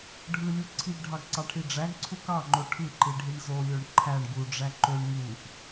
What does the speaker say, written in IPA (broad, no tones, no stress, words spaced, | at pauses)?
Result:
ɖʱɯlʲu ǀʰiɡɖʱɑɡǀɑʈʰi ɖ͡ʐæɡǀʰu kɑŋ͡ǃo ʈʰɯǃiɖʱiɳ zolʲoɳ ǃʰæɳ ɡuɖ͡ʐæ ǃøɳ ŋuʔ